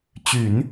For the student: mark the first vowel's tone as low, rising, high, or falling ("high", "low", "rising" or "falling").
low